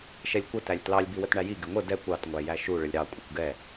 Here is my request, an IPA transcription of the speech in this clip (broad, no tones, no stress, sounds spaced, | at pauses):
ʃ ɛ lʲ kʷ ə t æ lʲ t l ɑ lʲ b i w ə t ɳ æ j i ɡ ɪ ŋʷ ə d ɛ kʷ ɑ t ŋʷ æ j æ ʃ u ɭ ə lʲ ɾ ɑ kʷʼ ɪ kʷ ɡ ɛ